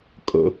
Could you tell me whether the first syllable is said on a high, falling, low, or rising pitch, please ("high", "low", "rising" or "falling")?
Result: low